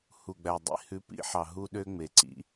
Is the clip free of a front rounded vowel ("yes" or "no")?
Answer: no